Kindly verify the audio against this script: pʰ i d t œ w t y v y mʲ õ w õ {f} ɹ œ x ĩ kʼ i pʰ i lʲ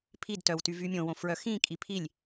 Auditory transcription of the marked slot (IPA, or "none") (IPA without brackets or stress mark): f